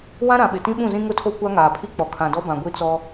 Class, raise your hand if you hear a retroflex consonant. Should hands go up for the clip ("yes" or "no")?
no